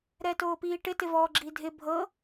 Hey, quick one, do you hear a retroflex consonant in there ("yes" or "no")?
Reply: yes